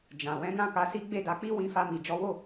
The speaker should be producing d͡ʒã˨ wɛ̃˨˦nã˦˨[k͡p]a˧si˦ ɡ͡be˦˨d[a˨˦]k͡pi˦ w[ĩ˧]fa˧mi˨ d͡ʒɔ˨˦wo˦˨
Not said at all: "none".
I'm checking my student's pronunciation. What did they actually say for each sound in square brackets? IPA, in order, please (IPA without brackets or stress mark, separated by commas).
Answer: k, a˨˦, ĩ˧